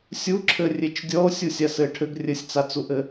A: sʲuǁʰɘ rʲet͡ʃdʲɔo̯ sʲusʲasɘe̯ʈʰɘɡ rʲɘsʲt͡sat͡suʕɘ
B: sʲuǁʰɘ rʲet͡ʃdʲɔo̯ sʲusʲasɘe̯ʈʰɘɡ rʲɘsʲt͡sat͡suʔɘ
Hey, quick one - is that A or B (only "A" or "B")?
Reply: B